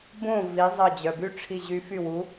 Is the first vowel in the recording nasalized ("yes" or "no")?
yes